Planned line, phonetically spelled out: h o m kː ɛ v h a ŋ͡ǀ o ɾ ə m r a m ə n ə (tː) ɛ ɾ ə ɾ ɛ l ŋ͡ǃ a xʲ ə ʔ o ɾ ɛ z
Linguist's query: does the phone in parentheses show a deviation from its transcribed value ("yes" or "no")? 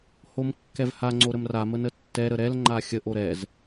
no